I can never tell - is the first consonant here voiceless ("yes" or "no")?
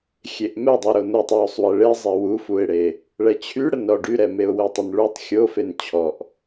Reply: yes